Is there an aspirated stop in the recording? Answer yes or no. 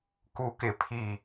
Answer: yes